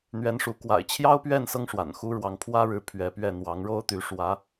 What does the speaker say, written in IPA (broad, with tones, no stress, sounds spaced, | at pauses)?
n̪ ɥ ɛ˧˥ n ʂ u˧˥ k w a̰˨˩ ɪ̯ t͡ɕʰ j ɑ˥ ʊ̯ p ɥ ɛ˥˩ n s ɤ˥ ŋ ʂ w a̰˨˩ n x u˥ ɻ w ɑ˧˥ ŋ pʰ w ä˥ ɻ ɻ̩˧˥ pʰ ɥ ɛ˧˥ p ɥ ɛ˥˩ n̪ w ɑ˧˥ ŋ ɻ o˥ ʊ̯ t̪ y˧˥ ʂ w ä˧˥